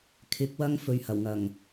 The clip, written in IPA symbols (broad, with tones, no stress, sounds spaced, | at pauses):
kʰ ɪ˨˥ k̚ w ɐ˧ ŋ f ɵ˨ ɥ h ɐ˨˩ w ŋ ɐ˨˩ ŋ